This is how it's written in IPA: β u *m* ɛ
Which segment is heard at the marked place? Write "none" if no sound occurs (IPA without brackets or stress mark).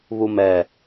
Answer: m